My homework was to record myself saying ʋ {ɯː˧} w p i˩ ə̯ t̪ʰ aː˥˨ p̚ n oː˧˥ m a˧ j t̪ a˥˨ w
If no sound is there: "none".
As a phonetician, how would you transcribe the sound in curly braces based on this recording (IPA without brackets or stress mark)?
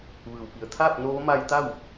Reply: ɯː˩